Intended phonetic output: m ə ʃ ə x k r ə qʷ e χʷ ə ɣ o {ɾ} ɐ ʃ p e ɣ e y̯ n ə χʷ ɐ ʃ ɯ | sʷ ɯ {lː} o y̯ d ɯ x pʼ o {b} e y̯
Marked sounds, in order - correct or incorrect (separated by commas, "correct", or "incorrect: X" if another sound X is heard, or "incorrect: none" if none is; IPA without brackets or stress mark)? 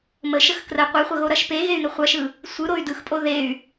correct, incorrect: ɾ, incorrect: ð